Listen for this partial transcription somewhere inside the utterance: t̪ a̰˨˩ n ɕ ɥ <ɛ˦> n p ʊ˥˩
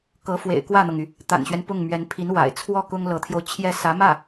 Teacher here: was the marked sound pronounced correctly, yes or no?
yes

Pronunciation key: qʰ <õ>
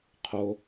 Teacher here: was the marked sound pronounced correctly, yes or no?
no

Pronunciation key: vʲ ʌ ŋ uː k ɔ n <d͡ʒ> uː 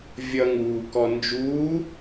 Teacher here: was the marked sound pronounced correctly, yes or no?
yes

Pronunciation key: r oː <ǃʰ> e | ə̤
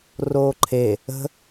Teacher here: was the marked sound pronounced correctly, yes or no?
yes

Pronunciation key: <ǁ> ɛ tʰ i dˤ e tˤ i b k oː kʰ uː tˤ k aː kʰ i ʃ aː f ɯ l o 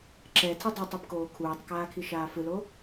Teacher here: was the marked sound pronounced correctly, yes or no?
yes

